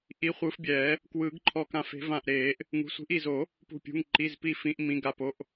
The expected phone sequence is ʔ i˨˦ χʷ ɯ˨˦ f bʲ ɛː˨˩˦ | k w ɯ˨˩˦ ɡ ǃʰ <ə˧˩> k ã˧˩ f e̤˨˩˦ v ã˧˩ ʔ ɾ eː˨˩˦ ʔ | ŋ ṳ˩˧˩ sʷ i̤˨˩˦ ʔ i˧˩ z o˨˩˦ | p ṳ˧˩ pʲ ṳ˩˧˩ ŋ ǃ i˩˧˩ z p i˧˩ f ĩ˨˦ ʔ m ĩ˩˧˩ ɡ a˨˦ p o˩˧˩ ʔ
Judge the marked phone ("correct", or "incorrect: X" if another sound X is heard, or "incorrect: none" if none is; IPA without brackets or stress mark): incorrect: ɔ˧˩